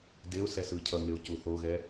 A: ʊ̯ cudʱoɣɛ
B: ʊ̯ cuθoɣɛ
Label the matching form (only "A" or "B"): B